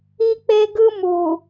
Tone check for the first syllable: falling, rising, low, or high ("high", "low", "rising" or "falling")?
high